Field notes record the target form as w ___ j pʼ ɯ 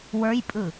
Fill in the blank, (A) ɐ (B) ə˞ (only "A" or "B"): B